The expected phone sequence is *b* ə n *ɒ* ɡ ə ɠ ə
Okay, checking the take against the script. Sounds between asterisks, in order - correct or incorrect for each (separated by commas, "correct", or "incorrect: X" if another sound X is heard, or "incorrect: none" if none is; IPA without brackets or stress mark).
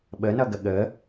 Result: incorrect: ɓ, incorrect: ʌ